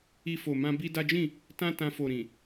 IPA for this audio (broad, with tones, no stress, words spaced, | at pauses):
i˧fo˨mã˧ bi˦da˦ d͡ʒĩ˦˨ | tã˦tã˧fo˨ ɾĩ˨